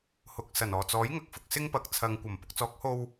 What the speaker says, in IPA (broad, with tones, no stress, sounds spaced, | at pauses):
h ʊ˨ k̚ s ɐ˨˩ n ɔː˨˩ t͡s ɔː˨˥ j ŋ ɐ˨ k̚ f ʊ˨ k̚ s ɪ˥ ŋ p ɐ˨ k̚ t͡sʰ ɐ˨ ŋ kʷ ɐ˨˩ m p ʊ˨ k̚ t͡s ɔː˨˥ k̚ h o˧ w